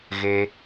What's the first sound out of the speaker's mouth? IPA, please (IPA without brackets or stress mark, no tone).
ɣ